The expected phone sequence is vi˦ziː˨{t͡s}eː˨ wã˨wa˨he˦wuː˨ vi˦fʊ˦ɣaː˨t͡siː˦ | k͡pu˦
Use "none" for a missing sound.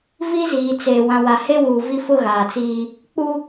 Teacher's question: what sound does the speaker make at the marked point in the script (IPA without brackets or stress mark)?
t͡s